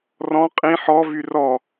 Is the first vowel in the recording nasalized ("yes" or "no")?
yes